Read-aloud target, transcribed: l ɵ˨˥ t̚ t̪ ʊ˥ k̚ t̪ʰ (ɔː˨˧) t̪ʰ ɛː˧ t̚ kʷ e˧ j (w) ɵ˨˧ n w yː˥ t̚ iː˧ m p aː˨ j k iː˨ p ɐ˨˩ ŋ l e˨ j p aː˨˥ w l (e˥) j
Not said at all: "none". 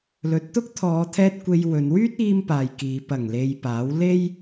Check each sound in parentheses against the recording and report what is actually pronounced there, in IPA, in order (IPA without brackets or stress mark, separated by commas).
ɔː˨˧, w, e˥